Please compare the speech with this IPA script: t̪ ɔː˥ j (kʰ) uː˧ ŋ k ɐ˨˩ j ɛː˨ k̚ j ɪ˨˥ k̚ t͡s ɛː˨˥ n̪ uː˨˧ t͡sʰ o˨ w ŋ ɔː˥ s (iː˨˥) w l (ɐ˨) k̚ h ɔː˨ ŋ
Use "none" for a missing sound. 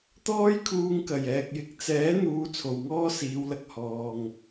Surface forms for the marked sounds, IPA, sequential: kʰ, iː˨˧, ɐ˨

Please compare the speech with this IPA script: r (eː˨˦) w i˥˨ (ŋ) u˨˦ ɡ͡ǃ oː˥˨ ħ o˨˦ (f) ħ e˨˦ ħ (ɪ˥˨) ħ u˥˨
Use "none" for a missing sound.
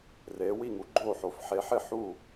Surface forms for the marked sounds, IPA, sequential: eː˨˦, ŋ, f, ɪ˥˨

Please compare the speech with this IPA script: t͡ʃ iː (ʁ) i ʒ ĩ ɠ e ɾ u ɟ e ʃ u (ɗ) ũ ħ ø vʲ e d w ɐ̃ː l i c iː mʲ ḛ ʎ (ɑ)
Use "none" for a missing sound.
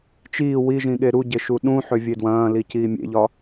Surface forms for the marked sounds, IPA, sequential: w, ɗ, ɒ

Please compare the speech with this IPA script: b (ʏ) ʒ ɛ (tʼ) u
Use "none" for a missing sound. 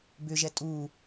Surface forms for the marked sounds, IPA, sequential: ʏ, tʼ

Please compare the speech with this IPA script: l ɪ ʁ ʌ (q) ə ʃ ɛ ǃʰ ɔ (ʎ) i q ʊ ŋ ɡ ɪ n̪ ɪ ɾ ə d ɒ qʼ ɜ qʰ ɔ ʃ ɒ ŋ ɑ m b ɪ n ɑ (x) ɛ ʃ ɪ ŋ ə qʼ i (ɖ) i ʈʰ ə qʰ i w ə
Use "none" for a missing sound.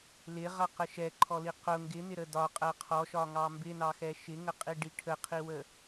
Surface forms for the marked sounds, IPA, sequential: q, l, x, ɖ

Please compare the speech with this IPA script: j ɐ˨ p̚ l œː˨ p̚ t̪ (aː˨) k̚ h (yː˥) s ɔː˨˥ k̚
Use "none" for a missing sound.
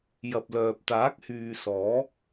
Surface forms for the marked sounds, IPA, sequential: aː˨˥, yː˨

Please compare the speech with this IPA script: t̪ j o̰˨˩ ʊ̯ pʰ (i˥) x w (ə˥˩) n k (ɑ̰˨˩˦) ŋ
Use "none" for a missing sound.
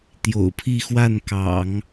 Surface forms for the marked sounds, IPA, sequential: i˥˧, a˥˩, ɑ̰˨˩˦

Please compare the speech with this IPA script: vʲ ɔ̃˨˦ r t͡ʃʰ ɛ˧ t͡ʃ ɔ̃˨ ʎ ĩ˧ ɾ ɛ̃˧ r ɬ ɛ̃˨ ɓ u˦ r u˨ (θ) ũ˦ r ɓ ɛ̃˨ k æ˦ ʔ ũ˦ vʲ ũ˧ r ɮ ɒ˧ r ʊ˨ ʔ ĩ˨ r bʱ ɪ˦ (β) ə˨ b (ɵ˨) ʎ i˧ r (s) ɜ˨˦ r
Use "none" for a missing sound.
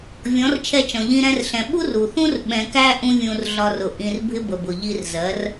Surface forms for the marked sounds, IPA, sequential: θ, b, ʊ˨, z

